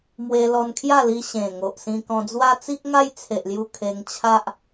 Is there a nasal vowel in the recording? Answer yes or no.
yes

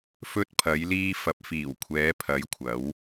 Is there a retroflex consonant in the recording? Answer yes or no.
no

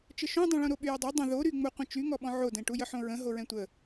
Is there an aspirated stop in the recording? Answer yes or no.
no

